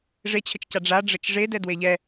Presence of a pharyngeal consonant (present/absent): absent